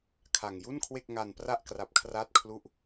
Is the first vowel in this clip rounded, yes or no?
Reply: no